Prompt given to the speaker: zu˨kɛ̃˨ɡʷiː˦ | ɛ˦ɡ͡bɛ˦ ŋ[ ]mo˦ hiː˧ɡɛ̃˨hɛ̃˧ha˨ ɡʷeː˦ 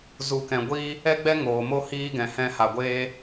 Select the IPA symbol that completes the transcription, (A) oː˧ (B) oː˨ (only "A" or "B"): B